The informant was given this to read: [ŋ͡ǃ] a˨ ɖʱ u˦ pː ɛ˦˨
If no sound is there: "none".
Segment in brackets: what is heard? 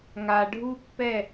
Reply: ŋ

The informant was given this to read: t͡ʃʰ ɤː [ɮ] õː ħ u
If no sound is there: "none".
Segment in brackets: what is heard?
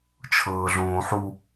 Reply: ɮ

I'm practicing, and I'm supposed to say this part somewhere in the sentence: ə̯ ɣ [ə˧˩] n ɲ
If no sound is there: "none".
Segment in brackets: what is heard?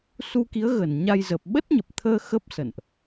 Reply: ə˧˩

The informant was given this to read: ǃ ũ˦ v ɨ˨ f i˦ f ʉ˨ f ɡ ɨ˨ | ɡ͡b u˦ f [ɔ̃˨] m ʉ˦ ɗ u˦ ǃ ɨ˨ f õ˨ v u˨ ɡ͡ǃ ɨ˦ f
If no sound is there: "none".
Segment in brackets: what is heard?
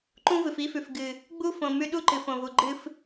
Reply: õ˨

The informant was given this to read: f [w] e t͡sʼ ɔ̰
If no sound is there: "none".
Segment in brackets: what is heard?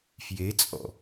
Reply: j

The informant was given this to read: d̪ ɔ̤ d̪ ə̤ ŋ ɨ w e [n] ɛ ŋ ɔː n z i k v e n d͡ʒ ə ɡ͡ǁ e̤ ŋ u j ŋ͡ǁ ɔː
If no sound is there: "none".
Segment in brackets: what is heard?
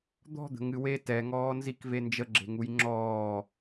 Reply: t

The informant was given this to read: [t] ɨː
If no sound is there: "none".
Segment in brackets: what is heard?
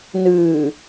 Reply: n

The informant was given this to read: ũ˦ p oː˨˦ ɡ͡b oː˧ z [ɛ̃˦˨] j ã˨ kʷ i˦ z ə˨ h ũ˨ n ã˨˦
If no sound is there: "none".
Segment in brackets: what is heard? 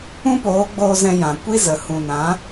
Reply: ɛ̃˧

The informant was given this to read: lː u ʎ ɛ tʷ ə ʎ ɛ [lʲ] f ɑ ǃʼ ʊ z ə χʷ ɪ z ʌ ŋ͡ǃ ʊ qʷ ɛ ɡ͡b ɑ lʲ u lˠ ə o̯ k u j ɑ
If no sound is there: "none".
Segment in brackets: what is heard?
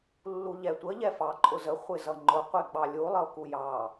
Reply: none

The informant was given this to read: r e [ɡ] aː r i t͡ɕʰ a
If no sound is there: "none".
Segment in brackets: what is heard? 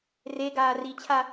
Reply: ɡ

